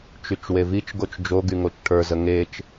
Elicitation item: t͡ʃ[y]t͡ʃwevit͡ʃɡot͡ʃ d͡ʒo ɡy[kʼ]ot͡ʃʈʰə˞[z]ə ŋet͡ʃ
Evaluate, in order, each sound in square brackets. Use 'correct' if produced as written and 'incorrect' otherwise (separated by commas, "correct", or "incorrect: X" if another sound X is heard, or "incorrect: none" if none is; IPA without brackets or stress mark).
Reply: correct, incorrect: ŋ, correct